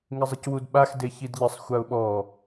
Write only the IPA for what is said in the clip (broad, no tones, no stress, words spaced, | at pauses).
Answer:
ŋɪzˤɪcwudɓax deçidʎɪsˤ xʷaʊ̯ɓɔ